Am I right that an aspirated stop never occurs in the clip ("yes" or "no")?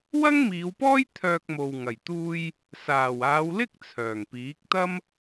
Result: no